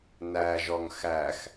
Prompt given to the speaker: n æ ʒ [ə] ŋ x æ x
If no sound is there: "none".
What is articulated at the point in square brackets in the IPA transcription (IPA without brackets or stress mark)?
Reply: ɔ